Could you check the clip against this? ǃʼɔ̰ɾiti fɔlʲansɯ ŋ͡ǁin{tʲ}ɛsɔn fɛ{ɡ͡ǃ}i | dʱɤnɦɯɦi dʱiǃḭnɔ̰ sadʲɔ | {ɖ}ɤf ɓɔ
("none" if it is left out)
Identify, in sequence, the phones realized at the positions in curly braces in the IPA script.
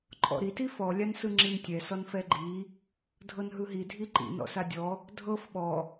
tʲ, ɡ͡ǃ, dʱ

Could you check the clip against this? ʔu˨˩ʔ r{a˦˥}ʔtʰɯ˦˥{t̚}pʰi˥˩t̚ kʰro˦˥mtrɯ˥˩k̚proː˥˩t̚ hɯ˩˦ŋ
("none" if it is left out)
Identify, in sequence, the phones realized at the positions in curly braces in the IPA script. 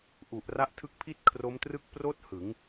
a˦˥, k̚

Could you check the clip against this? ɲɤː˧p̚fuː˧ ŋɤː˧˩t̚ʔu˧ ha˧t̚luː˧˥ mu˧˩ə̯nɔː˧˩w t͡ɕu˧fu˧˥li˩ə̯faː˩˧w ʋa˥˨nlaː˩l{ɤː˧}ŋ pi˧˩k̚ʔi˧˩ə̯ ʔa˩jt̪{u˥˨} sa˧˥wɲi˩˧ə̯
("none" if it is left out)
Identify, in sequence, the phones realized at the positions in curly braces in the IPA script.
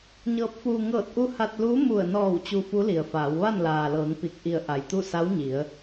ɤː˩˧, u˥˨

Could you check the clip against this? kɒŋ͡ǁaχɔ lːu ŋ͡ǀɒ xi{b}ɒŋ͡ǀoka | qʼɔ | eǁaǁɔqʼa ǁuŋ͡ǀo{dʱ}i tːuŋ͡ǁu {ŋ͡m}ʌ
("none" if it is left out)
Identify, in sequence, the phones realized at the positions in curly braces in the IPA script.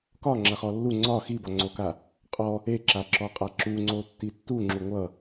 b, tː, ŋʷ

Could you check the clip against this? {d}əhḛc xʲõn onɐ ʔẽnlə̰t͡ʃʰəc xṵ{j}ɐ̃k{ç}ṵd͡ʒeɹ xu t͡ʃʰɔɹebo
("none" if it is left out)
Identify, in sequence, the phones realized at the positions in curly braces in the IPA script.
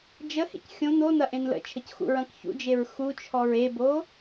d͡ʒ, ɹ, ç

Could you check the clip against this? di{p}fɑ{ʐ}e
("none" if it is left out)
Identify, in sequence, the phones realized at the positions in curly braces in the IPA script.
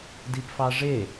p, ʐ

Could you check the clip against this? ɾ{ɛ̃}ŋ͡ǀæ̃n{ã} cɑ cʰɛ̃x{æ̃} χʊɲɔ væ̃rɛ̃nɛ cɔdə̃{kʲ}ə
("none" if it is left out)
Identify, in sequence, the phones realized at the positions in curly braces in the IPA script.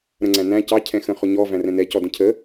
ə̃, æ̃, ə̃, cʰ

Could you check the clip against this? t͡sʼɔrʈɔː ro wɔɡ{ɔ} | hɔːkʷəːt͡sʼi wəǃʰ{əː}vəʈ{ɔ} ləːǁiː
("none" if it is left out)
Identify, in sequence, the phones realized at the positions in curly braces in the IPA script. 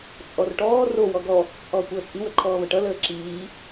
ɔ, ɔː, ʌ

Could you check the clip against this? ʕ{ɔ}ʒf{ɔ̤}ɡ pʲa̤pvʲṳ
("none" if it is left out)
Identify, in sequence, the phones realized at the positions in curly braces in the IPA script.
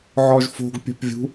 ɔ, o̤

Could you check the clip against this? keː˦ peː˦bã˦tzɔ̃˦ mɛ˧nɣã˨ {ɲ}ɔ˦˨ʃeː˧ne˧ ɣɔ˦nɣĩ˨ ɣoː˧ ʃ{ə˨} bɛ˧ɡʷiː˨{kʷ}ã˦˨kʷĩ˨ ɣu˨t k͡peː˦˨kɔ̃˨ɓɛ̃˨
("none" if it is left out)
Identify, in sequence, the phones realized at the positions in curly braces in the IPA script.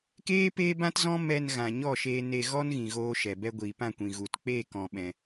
ɲ, ɛ˨, p

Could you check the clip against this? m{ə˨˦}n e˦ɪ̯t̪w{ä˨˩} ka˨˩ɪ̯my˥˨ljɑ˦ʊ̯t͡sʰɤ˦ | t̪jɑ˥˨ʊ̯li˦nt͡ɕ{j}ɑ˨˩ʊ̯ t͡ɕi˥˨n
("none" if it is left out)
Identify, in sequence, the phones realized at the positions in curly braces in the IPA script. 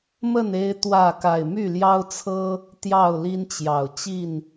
ə˥˨, ä˥˨, j

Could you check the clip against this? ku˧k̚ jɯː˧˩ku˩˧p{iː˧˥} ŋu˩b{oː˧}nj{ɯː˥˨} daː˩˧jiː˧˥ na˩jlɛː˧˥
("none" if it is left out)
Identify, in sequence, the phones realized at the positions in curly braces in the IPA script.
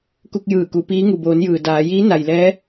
iː˧˥, oː˩˧, ɯː˩

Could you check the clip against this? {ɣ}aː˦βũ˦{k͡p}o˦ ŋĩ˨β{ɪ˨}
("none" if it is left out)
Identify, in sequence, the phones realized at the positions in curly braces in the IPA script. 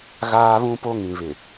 ɣ, p, ɪ˨

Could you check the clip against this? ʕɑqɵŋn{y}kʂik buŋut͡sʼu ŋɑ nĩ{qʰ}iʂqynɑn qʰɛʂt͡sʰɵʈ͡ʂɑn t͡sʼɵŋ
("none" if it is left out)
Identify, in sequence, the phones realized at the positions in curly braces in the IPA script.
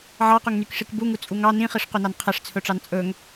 y, χ

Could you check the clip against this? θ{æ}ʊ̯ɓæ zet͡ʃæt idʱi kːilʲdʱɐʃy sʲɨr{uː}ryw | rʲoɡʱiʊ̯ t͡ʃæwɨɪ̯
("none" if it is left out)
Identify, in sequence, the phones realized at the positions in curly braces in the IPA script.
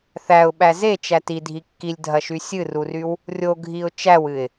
æ, u

